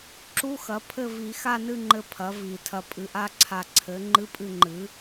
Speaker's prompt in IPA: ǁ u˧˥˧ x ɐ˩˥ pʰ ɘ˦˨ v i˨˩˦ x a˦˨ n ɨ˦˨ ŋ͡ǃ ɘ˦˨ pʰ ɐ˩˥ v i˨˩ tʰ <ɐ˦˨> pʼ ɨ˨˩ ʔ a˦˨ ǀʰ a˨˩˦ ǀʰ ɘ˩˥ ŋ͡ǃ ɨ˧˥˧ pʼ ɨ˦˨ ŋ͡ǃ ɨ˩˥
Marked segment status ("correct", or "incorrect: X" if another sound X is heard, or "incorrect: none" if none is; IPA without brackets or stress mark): incorrect: ɐ˨˩